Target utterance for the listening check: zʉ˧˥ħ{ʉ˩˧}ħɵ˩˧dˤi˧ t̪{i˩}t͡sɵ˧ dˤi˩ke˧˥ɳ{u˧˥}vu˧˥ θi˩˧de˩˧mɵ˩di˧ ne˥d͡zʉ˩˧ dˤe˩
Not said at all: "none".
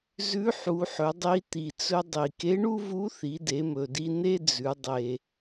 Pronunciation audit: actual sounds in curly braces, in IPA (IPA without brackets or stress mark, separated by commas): u˩˧, i˩, u˥